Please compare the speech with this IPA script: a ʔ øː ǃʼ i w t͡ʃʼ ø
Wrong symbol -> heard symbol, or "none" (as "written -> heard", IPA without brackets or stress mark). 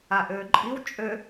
none